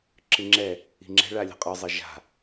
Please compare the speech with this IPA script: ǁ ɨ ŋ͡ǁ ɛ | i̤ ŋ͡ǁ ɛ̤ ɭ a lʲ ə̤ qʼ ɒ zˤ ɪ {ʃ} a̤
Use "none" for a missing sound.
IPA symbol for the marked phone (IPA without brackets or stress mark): ʒ